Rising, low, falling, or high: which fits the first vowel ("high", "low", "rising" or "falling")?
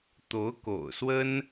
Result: rising